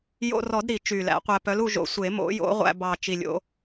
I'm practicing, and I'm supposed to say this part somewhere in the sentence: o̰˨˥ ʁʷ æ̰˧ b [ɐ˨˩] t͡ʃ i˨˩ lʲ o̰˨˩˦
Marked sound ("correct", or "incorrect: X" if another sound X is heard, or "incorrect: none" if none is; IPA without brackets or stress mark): incorrect: ɑ˨˩